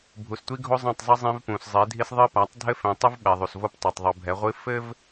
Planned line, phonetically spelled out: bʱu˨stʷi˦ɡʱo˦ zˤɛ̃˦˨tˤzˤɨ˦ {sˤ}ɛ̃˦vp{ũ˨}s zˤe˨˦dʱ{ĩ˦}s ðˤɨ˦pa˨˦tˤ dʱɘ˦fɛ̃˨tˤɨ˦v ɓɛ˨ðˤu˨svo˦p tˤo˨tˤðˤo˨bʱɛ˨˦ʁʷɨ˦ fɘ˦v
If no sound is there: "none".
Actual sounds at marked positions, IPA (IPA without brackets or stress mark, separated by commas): zˤ, ũ˨, i˦